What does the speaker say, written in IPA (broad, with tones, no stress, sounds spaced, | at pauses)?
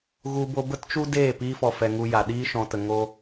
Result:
ɣ u˦ b o˦ b ə˦ t t͡ʃ u˦ d eː˦˨ p iː˦ f ɔ˧ f ɛ˧ ŋ u˧ j a˨ ɗ iː˦ ʃ ɔ̃˦ t ə˦ ŋ oː˦